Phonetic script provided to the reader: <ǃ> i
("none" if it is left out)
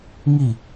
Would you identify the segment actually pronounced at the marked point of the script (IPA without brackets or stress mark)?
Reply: ŋ